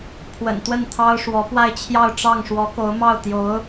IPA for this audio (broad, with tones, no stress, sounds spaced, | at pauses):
pʰ w ə̰˨˩ n t̪ w ə˥˩ n t̪ʰ ɑ˥ ʊ̯ ʂ w ɔ˧˥ p w a˥˧ ɪ̯ t͡ɕʰ j ɑ˥˧ ʊ̯ ʈ͡ʂ ɑ˥˩ ŋ ʂ w ɔ˧˥ k o˧˥ ʊ̯ m ɑ˥˩ ʊ̯ t̪ j o˧˥ ʊ̯